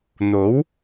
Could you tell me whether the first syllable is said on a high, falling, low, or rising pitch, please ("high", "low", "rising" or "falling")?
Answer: rising